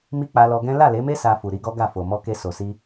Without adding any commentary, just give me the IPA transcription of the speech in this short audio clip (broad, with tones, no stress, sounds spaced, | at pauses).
m i˦ k͡p a˧ l ɔ˧ ɡ ɛ̃˦ l a˦˨ l e˨˦ m e˦ s a˧ f u˨ ɾ i˧ ɡ ɔ˦ ɡ a˦˨ f o˨ m ɔ˧ k e˧ s o˨ s i˧